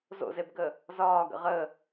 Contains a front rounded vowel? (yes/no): no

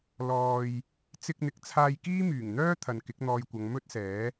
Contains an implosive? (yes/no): no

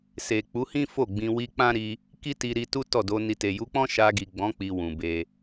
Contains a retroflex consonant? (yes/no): no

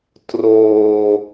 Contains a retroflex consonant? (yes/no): no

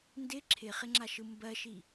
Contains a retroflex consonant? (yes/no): no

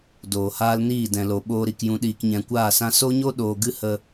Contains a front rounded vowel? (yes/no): no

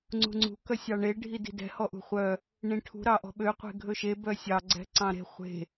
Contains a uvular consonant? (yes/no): yes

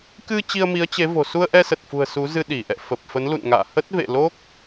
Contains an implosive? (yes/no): yes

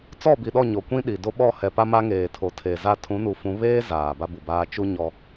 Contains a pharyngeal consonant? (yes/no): no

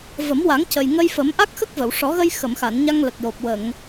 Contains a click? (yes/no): no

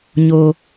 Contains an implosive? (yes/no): no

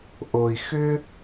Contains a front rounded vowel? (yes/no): yes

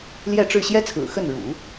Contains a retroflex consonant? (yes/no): yes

